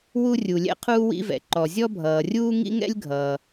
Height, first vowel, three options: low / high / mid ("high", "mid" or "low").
high